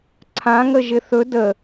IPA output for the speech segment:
ǀʰãŋəʒɪ θɵ də

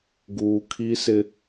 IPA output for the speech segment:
ɡuː˦ kʰi˦sɪ˦

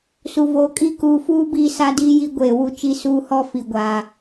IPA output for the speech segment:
su˨vo˨kʼi˦ kuː˨fuː˦ biː˦sa˦diː˦ji˦ ɡʷeː˨wu˦t͡ʃi˦ suː˦hɔ˦ fi˨ɡʷa˨

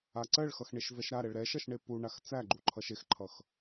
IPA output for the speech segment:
aǀɜɭxʌx ɳeʃvɛʃɾaɾɛɭ ɾɛʃʌʃ ɳepuɳax t͡sæɡ͡ǃu ǃʰʌʃexǃʰʌx

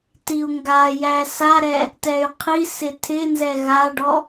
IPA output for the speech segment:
tiu̯ŋɡajæ saɾɛ | tɛy̯qʰisɪ tʰɪ nzɛɣaɖɔ

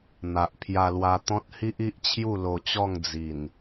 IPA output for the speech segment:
n̪a˨ʔpʰja˧lwa˧ t̪ɔ̃˦t̚hi˦ʔi˦ʔt͡ɕʰju˥˧ lo˧t͡ɕɔ˥˧ŋ d͡zi˨˩n

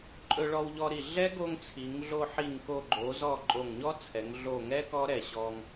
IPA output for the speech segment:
ǃʼɵ˧ɭɔ˧wʎɔ˧ɾi˧˩ ɮɛ˦˥ɡo˧ŋt͡sʰi˩˧ŋ ɮo˧ħi˧˩ŋko˧˩ ɡ͡ǃo˩˧zɔ˧˩ ǃʼo˧˩ŋ ɲɔ˦˥t͡sʰɛ˩˧ŋ ɮo˧˩ŋɛ˦˥ kɔ˦˥ɾɛ˧˩ɕɔ˧ŋ

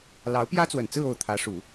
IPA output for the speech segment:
lɑ˧˥ʊ̯pjä˥t͡swə˨˩nt͡sɹ̩˥˧ o˥˩ʊ̯t̪ʰä˧˥ ʂu˨˩˦

